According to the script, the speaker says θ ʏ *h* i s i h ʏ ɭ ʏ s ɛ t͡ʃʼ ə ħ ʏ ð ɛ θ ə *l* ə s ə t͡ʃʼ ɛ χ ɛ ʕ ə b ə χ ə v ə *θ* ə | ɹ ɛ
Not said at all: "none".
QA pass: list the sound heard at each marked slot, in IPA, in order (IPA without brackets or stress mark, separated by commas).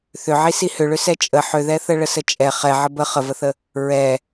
ʕ, ɭ, θ